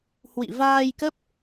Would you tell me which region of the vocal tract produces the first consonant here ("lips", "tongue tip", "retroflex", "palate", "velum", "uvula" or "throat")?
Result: throat